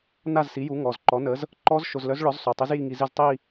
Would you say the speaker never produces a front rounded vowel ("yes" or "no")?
no